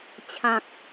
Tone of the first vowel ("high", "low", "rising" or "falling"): low